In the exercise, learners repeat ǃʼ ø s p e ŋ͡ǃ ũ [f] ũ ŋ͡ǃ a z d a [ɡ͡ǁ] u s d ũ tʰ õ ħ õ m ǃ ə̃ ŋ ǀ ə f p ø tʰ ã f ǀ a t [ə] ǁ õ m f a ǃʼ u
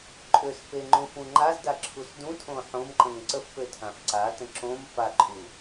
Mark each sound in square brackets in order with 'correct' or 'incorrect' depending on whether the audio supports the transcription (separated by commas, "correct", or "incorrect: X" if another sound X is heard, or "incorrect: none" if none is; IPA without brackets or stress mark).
correct, incorrect: ǁʰ, incorrect: ə̃